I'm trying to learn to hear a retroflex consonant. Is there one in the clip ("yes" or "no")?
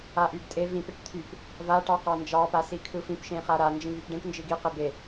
yes